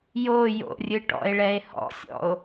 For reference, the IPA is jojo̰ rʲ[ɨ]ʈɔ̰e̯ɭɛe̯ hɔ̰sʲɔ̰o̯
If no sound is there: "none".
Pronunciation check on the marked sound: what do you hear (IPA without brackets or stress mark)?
ɨ